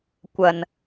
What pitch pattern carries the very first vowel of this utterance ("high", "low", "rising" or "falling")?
low